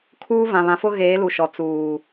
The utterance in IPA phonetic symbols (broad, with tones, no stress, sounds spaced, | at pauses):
kʰ uː˦ v ã˨ β ã˨ f ʊ˦ ɣ eː˨˦ l u˨ ʃ ɔ˨ t͡s uː˨